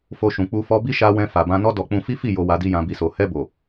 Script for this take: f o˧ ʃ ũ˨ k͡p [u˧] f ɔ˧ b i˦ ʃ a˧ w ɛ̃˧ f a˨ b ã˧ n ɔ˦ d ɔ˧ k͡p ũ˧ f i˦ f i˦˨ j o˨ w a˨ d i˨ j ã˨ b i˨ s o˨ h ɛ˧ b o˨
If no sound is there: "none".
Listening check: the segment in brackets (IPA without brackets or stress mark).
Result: u˧